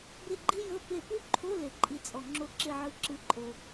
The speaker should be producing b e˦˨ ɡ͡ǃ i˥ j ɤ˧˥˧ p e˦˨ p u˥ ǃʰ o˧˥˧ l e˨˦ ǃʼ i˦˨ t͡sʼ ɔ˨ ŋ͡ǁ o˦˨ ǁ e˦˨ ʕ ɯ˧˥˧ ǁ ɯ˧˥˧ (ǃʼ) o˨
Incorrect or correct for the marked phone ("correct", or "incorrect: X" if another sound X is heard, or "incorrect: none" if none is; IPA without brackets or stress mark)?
correct